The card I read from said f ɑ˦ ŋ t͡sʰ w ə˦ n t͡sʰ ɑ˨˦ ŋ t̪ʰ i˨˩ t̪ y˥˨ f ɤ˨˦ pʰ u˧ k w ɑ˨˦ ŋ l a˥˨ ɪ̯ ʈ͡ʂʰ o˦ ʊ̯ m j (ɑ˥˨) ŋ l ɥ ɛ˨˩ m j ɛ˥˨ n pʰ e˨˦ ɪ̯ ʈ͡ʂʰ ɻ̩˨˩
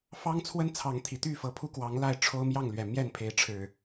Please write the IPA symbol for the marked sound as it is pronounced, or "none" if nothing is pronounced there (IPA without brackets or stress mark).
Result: ɑ˥˨